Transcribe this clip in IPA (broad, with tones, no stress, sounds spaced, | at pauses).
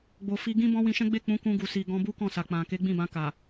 ɡ͡b o˨ f i˧ ɡ ĩ˦ b ɔ̃˦ w ĩ˧ ʃ ɛ̃˦ ɡ͡b e˦˨ k͡p ũ˨˦ k ũ˧ ɡ u˨ s i˨ ɡ ɔ̃˧ b u˦ k ɔ̃˦˨ s a˨ k͡p ã˨ k e˨˦ ɡ͡b ĩ˦˨ b ã˧ k a˨